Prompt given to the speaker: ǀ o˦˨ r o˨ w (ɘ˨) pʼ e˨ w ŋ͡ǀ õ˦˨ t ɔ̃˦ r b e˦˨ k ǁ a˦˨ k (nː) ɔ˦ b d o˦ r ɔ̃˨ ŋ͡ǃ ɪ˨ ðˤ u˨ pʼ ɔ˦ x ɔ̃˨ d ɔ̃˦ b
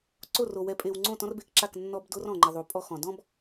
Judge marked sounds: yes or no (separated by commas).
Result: no, yes